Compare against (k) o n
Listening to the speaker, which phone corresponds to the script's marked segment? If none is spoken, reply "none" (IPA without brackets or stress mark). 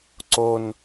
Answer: ǀ